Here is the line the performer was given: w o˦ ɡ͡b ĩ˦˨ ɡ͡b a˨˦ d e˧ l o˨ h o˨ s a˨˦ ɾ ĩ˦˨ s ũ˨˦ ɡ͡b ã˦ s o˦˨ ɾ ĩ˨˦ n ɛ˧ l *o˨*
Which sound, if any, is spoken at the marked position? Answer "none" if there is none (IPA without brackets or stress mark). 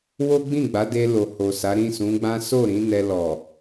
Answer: ɔ˨